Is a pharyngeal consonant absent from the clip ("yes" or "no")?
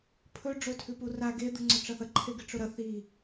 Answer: yes